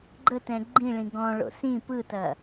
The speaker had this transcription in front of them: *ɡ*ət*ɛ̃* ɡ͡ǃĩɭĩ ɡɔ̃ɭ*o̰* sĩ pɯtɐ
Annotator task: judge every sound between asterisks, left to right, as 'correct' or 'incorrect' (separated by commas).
incorrect, correct, correct